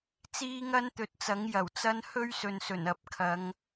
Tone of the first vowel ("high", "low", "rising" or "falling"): high